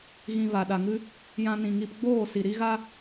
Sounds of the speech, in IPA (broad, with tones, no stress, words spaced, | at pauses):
ɣĩ˨ va˨ɗa˨ŋɨ˦ | jã˧nĩ˨ŋi˧p ɡ͡boː˦˨ si˨ɾi˦ɣa˦